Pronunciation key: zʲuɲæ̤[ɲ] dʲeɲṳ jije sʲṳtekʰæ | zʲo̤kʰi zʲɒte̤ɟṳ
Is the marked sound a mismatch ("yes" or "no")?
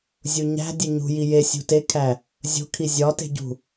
yes